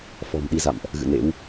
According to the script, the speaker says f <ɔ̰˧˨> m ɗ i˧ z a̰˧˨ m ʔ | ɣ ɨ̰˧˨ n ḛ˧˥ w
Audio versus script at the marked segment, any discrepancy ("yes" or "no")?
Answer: yes